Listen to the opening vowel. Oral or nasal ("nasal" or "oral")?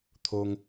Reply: oral